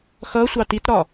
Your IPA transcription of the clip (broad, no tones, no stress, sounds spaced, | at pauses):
x ʌ sʷ ɑ t i t ɾ ɒ